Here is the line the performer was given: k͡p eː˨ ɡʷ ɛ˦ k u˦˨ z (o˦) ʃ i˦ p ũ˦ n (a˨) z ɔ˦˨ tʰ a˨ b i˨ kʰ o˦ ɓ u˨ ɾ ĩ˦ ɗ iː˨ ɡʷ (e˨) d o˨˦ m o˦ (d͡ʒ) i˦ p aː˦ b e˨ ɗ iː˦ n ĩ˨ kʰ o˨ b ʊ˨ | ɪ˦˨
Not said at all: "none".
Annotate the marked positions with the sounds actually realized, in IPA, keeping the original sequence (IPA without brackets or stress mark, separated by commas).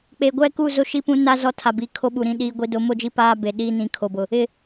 o˦, a˦, i˨, d͡ʒ